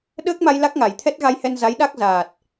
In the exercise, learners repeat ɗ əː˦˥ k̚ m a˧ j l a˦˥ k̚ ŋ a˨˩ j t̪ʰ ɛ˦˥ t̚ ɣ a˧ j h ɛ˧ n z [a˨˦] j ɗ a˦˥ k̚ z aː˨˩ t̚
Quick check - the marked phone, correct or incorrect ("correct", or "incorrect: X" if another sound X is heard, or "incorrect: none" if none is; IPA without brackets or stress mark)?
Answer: correct